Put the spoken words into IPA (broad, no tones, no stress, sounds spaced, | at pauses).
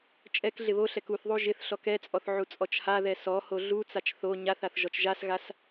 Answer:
t͡ʃʼ ɛ k ɮ ɪ β o ɬ ɛ k u θ ðˤ u ʒ ɪ θ ɬ ɔ k ɛ t͡sʼ ɔ θ ʕ u t͡sʼ ɔ t͡ʃ h a ð ɛ s ɔ h o ɮ u t͡s a t͡ʃ θ o ɲ a θ a θ ʒ ɔ t͡ʃ ʒ a s ɣ a s